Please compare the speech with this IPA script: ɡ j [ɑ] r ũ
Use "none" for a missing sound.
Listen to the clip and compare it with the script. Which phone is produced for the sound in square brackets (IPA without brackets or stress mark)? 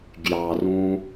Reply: ɑ